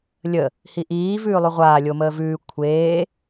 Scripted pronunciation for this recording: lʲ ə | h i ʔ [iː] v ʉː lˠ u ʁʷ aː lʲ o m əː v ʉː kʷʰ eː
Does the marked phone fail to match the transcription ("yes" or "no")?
no